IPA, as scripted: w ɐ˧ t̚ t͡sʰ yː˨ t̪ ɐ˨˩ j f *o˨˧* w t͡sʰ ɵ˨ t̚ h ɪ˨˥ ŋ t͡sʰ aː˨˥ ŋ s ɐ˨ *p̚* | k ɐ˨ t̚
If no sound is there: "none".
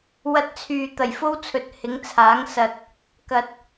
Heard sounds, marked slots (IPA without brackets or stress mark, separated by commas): o˥, t̚